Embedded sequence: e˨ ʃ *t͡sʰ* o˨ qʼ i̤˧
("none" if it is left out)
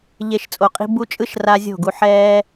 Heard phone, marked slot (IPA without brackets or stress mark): t͡sʼ